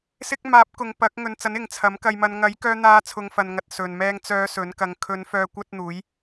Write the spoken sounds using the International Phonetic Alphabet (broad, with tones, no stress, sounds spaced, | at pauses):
s ɪ˧ k̚ m aː˨˥ p̚ k ʊ˨ ŋ p ɐ˨˥ k̚ ŋ ɵ˨ n t͡s ɐ˨˥ n ɪ˨ ŋ t͡sʰ ɐ˨˥ m k ɐ˨ j m ɐ˨ n ŋ ɐ˨˥ j k œː˧ n̪ aː˧ t͡sʰ ʊ˨˧ ŋ f ɐ˧ n ŋ ɐ˧ t̚ s ɵ˨ n m ɛː˧ ŋ t͡s œː˨˧ s ɵ˨˥ n k ɐ˧ ŋ kʰ ɵ˨˧ n f œː˧ kʷ ɐ˥ t̚ n̪ uː˨˥ j